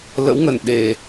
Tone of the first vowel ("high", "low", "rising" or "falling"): rising